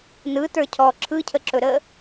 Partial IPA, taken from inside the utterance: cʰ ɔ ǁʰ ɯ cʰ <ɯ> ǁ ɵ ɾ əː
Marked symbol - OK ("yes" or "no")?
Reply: no